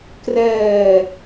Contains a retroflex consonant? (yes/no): no